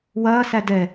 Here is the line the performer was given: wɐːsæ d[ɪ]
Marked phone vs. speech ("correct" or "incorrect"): incorrect